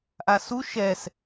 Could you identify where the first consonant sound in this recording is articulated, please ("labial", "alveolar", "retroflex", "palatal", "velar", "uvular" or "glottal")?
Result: glottal